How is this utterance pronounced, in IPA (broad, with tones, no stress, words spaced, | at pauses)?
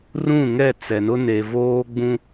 rũ˦˨ŋɛ˦˨ t͡sɛ˨nʊ˦ ne˨voː˦ ɡ͡bũ˦